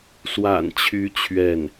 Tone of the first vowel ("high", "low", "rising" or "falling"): low